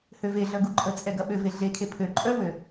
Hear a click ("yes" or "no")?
yes